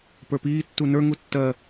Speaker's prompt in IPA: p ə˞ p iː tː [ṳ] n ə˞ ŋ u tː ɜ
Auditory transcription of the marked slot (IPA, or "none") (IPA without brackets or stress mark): u